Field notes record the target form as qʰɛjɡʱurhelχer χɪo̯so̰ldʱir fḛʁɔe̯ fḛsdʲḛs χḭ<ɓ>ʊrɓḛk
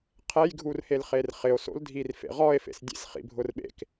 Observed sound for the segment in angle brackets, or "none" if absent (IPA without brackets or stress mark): bʱ